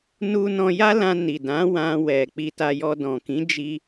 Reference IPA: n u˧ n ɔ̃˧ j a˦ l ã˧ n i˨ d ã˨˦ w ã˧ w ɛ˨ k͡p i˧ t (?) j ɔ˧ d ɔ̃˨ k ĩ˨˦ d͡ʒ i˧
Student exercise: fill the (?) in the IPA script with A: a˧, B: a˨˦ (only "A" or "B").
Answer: A